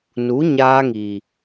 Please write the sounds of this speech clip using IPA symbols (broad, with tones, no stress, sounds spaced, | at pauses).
n u˨˦ ɲ aː˧ ŋ iː˨